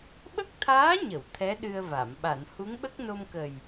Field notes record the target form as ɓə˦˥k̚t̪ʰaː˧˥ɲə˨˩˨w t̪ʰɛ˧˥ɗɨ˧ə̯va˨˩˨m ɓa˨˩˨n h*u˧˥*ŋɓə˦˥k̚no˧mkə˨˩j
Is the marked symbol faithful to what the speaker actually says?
yes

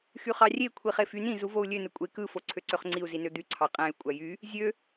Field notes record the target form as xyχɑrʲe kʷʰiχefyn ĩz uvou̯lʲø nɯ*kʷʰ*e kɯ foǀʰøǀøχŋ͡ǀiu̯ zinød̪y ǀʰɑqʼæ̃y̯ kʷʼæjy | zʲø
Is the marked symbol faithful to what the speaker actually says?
no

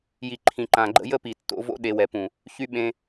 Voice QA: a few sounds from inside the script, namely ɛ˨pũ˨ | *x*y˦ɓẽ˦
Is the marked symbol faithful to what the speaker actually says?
no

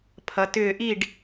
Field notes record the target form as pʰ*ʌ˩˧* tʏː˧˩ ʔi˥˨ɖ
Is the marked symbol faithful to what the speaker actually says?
yes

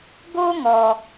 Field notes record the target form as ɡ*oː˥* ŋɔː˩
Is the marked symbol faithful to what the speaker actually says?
yes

